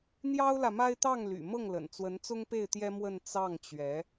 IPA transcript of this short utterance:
n̪ j ɑ˥ ʊ̯ l ä˨ m a˥ ɪ̯ t̪ ɑ˥˩ ŋ l y̰˨˩ m ɤ˥˩ ŋ l ə̰˨˩ n t͡s w ə˧˥ n t͡s ʊ˥ ŋ p e˥˩ ɪ̯ t̪ j ɛ˥ m w ə˥˧ n t͡s ɑ˥˩ ŋ t͡ɕ ɥ ɛ˧˥

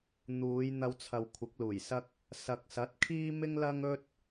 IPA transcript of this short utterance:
n̪ uː˨˧ j n̪ ɐ˧ w t͡sʰ ɐ˨ w kʷʰ ɪ˨˥ k̚ l uː˨˩ j s ɐ˥ k̚ | s ɐ˨ k̚ s ɐ˨˥ t̚ kʰ iː˥ m ɪ˥ ŋ l ɐ˥ ŋ ɵ˥ t̚

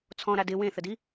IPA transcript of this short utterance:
t͡sʰ ɔ̃ ɾ a d ɪ w ẽ θ ə d i

